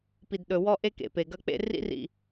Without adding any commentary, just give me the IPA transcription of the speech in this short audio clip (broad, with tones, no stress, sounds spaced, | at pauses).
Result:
p i˨ d ɗ ɵ˨ w ɔ˦ ʔ e˦ k ḛ˨ p e˨ ɡ ɐ˦ k͡p ḛ˦ r ḭ˦ r ḭ˨